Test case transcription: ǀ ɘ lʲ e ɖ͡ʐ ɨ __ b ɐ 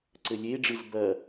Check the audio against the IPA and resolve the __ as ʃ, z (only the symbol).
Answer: z